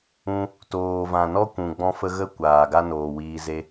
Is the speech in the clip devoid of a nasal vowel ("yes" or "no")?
no